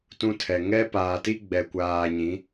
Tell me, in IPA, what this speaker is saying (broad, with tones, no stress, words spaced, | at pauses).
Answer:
tũ˦tʰɛ˨ ŋɛ˦paː˨ti˦ ɡ͡bɛ˨kʷaː˨ ɲĩ˨˦